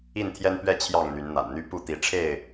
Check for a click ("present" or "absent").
absent